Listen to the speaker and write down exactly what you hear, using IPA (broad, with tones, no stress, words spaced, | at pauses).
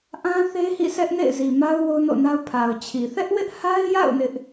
ʔã˦ θe˦hḭ˦˨ sɛ˦ʔnḛ˦˨ɪ̯zi˨ ma˦ʊ̯ wo˦ʊ̯no̰˦˨na˦ʊ̯ pʰa˨ʊ̯t͡ɕʰi˨ θɛ˦ʔwɪ˦ʔha˦ɪ̯ja̰˦˨ʊ̯ nɪ˦ʔ